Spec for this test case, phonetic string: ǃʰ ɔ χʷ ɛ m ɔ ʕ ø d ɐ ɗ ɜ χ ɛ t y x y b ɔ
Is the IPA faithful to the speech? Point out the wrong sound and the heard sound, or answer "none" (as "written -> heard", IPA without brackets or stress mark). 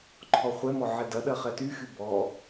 ø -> ɛ